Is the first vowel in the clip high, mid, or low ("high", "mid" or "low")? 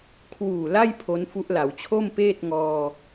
high